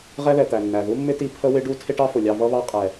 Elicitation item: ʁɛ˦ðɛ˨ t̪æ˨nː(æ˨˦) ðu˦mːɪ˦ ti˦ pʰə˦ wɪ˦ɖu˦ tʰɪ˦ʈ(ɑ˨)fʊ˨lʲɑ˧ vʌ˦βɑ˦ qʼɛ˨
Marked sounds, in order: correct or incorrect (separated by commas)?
incorrect, incorrect